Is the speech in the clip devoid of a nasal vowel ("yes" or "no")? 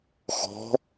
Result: yes